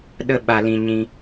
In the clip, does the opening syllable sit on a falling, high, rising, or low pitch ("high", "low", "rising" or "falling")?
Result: high